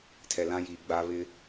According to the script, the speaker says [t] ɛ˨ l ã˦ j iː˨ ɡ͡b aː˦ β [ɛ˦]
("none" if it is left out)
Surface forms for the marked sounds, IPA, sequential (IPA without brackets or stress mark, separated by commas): tʰ, ɪ˦